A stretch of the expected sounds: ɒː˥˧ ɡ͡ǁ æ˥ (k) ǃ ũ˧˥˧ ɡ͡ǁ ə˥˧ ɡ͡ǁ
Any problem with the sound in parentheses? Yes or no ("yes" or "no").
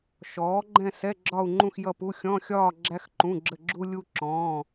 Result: yes